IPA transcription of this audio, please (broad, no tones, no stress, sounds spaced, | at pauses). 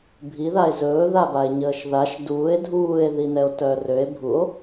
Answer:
bʱ i ð a e̯ z ɵː ð a b a e̯ ɲ əː ʃ ð a ʃ d uː e̯ dʱ uː e̯ ð i n ɛ o̯ t œ r ø e̯ bʱ u o̯